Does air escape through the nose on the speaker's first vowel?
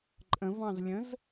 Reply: yes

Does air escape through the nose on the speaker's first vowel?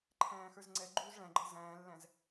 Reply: yes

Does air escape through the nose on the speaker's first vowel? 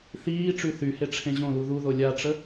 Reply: no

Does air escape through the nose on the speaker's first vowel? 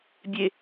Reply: no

